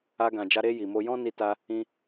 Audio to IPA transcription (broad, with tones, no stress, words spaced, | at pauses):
a˧ɡã˨d͡ʒa˧ ɾe˧ ji˨mo˧ jɔ̃˦ ni˧ta˧ | ĩ˧